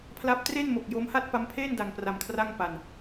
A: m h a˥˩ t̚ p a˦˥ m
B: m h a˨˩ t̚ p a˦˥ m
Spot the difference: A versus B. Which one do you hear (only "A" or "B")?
A